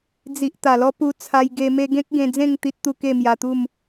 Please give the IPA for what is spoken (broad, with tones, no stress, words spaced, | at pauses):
d͡zi˨ʔ t̪a˨˩lɔ˦ pu˧t͡sʰa˧jɡe˧ me˧ɡẽ˦k̚ ɡẽ˧d͡zẽ˥˧ŋ t̪i˦t̚t̪u˥˧ ke˥˧mja˧t̪u˥˧m